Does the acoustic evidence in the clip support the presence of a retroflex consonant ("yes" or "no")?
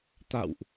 no